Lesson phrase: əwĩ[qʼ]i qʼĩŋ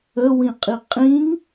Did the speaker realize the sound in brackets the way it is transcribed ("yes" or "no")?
yes